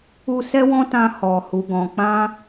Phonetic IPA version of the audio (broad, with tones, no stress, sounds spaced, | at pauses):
u˧ s ɛ˦ w ɔ̃˦ t ã˧ h ɔ˨ h u˨ ɡ ɔ̃˨ k͡p ã˧